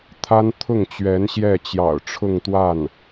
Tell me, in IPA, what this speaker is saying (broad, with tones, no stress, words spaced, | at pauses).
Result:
t̪ʰa˥n t̪ʰʊ˥˩ŋt͡ɕɥɛ˧˥n ɕjɛ˥˩t͡ɕjɑ̰˨˩ʊ̯ʈ͡ʂʰʊ˥˧ŋt̪wa˥˩n